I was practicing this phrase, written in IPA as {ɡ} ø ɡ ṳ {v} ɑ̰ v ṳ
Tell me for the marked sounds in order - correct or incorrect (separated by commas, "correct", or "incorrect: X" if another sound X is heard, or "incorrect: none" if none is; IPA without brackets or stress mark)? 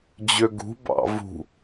incorrect: d͡ʑ, incorrect: b